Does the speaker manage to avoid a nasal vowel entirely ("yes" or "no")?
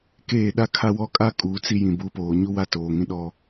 no